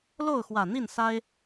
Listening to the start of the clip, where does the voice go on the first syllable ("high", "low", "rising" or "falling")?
falling